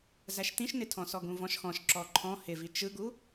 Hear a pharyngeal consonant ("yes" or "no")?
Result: no